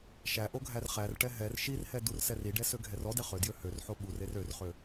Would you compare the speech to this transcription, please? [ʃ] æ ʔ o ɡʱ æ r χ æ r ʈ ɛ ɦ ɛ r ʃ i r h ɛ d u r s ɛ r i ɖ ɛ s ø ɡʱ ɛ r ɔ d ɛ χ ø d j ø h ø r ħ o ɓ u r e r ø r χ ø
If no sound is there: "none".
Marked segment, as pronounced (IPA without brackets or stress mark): ʃ